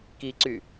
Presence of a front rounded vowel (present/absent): present